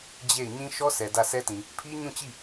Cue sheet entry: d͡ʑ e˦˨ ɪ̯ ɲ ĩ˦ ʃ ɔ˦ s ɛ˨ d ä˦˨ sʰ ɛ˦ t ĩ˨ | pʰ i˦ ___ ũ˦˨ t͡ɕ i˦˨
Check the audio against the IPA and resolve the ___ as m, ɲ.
ɲ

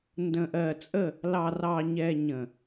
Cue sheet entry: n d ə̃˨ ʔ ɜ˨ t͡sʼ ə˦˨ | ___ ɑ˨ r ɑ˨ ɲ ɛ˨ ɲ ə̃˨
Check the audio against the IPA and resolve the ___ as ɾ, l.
l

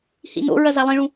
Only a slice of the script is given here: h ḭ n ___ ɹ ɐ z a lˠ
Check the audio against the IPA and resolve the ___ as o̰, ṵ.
o̰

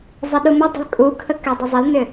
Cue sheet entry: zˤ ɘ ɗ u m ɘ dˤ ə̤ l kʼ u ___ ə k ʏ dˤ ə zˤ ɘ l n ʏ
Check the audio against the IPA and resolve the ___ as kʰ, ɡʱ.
kʰ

